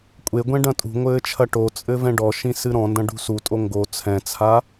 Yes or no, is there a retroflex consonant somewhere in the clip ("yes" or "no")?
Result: yes